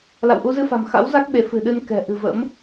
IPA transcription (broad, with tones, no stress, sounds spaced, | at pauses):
l a̰˧˨ w ʔ u˧ z ɨ˧ f a̤˨˩ m x a̰˧˥ w z a˦˥ k̚ ɓ e˨˦ f ɨ̤˨˩ ɗ ɨ˧ n k ɛ̤˨˩ ʔ ɨ̤˨˩ v ə̰˧˥ m